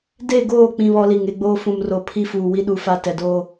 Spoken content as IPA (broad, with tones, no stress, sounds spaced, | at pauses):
d e˦˨ ɡ oː˦˨ k͡p ĩ˦ β ɔ˦ l i˨ ŋ e˦ ɡ͡b oː˦ f ũ˨ m r o˨ pʰ i˦ f uː˨ w i˦ ɗ u˦ f a˦ t ɛ˨ d oː˦